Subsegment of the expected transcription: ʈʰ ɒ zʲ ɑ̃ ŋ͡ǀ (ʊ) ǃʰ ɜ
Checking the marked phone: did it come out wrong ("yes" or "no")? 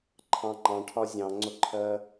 no